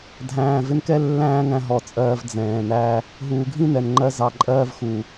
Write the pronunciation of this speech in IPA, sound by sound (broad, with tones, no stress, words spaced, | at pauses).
dʱæ̃ː˨ vɪ˧nkɛ˦ lːæ̃ː˦ŋæ̃˧ ɦɔ˨t͡sʼɜː˧v d͡zɛ̃ː˨næ˦ | ɦuː˨ɡʱĩ˦nɛ˨nŋ͡ǃɜ˧ zɑ˧ǃʼɜː˦vxu˨